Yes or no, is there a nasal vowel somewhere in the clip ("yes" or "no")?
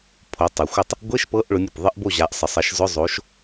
no